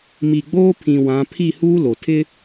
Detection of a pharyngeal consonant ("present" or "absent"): absent